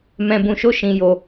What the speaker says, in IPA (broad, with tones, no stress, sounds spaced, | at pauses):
m ɛ̃˧ b ũ˧ ʃ o˦ ʃ ĩ˧ j o˧